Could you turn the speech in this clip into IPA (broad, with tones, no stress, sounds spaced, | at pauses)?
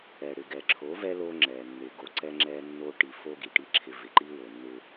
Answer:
ɛ˨ ɽ ɪ˨ ɡ ɛ˨ ǁʰ o˨˦ v ɛ˦ l o˦ ŋ͡ǁ ɛ˨ nː ɪ˨ ɡ o˨ ǀ ɛ˦ ŋ͡ǁ ɛ˦ nː o˦ ʈ i˨ f o˦ ɡ i˨ ʈ i˦ ǁʰ ɪ˦ v ɪ˨ ǃ i˦ w o˨ nː ɪ˦